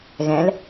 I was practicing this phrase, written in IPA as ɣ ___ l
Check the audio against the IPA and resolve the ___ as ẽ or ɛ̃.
ɛ̃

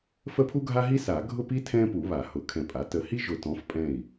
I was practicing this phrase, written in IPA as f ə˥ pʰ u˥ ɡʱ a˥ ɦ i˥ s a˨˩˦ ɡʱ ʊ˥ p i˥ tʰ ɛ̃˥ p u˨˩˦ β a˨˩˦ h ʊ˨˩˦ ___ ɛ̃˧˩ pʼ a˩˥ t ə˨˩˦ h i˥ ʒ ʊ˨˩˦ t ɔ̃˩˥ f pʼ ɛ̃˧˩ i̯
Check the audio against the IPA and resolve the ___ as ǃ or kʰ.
kʰ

